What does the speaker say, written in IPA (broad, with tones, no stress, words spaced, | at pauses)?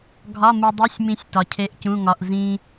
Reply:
ɡʱɒ˧˥˧mu˧dˤu˧˥˧sʲmĩ˧sʲ tɒ˧cʰe˧˥˧ʔcũ˧˥˧ŋɒ˧˥˧ʔ zĩ˧